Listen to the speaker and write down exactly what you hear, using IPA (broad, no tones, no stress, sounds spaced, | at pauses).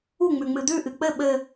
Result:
u ŋ͡m ʉ ŋ͡m ɨ d̪ ʉ ʔ ɨ k͡p ɘ ɓ ɘ